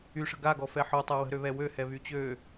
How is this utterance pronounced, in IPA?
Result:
y ʂ ə̤ ɡ a ɡ ɔ f ɛ ħ ɔ tˤ a w ə̤ ɾ ø β ɛ w ø h ɛ β y t͡ɕ ø

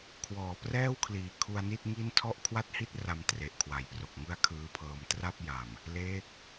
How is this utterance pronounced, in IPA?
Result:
kʰ w ɔː˩˦ p r ɛː˥˩ w kʰ l iː˨˩ kʰ u˧ a̯ n i˥˩ t̚ ŋ i˥˩ n tʰ ɔ˥˩ ʔ kʰ w a˥˩ t̚ h i˥˩ t̚ r a˧ m t r e˨˩ ʔ kʰ w a˩˦ j p r o˨˩ k̚ ŋ ɯ˥˩ a̯ kʰ ɯː˦˥ pʰ ɤː˧ m t r a˥˩ p̚ j a˨˩ m | l eː˦˥ k̚

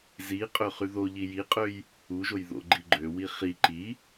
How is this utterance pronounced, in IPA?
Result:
z i qʼ ø χ y ð o ʎ i j i qʼ ø j | u ʒ o j ð o̰ ɡ͡ǃ i ɡ͡ǃ ø w i χ i ǃ i

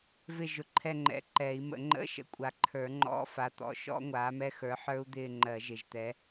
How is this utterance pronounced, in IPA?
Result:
v ɪ˦˨ ʒ ʊ˨ ǃʰ ɛ˦˨ ŋ͡ǃ ɛ̰˨˥ ǃ ɛ˨˩˦ i̯ m ə̰˨˩˦ ŋ͡ǃ ə̰˧˥˧ ʃ ə̰˨˥ kʷʼ a˨ ǃʰ ə˞˨˩˦ ŋ͡ǃ ɔ̰˧˥˧ f a˨˥ t̪ ɔ̰˨˥ ʃ ɔ̰˦˥ ŋʷ aː˨˥ m ɛ˦˥ x ə˞˨˥ ħ ə˞˦˥ u̯ d̪ ɪː˦˨ ŋ͡ǃ ɜ˨˩˦ ʒ ɪ˨ ʒ t̪ ɛ˨˥

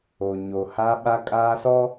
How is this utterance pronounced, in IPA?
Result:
o˨ ɲ o˨ h a˦ ɓ a˦ kʼ aː˦ s ɔ˦

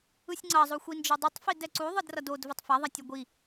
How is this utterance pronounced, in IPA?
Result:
ɯ sʲ ŋ͡ǀ ʌ zˤ o xʷ i n d͡ʒ ɯ dˤ ɯ tˤ f i d ɛ ǀ u ðˤ ɯ d r ʌ d o d v ɯ tˤ f a ðˤ a tʲ ʌ ɡʷ i

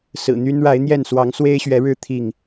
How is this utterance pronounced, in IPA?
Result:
s ɹ̩˨˩ n̪ y˦ n ɻ a˨˦ ɪ̯ n̪ j ɛ˥˨ n s w ɑ˨˦ ŋ s w e˦ ɪ̯ ɕ ɥ ɛ˨˦ ɻ ɻ̩˦ t̪ʰ i˥˨ ŋ

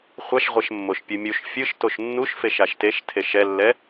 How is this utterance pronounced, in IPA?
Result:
χʷ a ʃ ʁʷ ɛ ʃ mː o ʃ pʲ ɯ mʲ u ʃ fʲ ɯ ʃ t o ʃ nː u ʃ f e ʃ a ʃ t e ʃ tʰ e ʃ ɛ lː ɛ

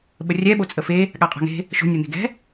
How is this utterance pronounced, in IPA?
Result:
ɓ ə rʲ ɛ ɓ o t͡sʼ ə f e | ɠ a qʼ a̤ ŋ e̤ | ʃ o̤ nʲ ɤ n̪ e̤ ɡ ɛ̤

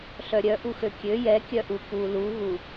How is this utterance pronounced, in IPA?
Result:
ɬ œ ɾʲ œ ʔ u x ø kʲ ø j ɛ kʲ œ ʔ u k u l u ɣ u

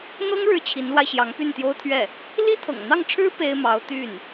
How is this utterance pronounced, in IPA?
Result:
n̪ ɤ˥ ŋ ɻ ɻ̩˥ t͡ɕʰ i˧˥ n l w a˧ ɪ̯ ɕ j ɑ˧˥ ŋ p y˥˩ n t̪ j o˥ ʊ̯ t̪ʰ ɥ ɛ˥˩ | l i˥ t̪ʰ ɤ̰˨˩ ŋ n̪ ɑ˥˩ ŋ ʈ͡ʂʰ ɻ̩˥ p e˥ ɪ̯ m ɑ˧˥ ʊ̯ t̪ y˥˩ n

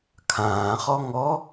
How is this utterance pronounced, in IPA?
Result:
kʰ ãː χ ɔ ŋ ɔ

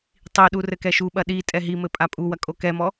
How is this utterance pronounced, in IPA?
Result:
tˤ i ɗ u r ɘ k ɛ ʃ u ɓ ɐ ɗ i tʼ ɛ ɦ i m ɘ pʼ a pʼ u w ɐ kʼ o k ɛ m ɔ

